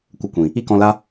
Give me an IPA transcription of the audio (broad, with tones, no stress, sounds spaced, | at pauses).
kʷ ə˧ kʷ ĩ˨ | i˦ k ɔ̃˧ l a˦